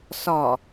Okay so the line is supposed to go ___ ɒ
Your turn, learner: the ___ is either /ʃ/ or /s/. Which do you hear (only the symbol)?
s